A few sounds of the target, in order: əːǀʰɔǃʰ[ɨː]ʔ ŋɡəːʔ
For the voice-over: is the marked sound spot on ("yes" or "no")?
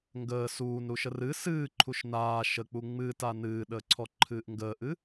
yes